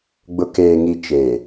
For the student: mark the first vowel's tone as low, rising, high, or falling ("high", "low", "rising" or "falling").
low